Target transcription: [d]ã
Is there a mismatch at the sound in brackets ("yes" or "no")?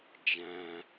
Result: yes